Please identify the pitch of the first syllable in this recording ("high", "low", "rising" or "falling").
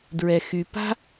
low